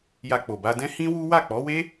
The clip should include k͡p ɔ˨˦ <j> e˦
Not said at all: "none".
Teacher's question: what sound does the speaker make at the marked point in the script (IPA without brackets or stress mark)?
w